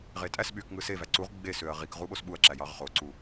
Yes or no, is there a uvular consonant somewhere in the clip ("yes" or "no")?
yes